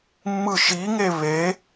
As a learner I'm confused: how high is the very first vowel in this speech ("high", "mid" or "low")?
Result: high